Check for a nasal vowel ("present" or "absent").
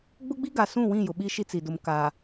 present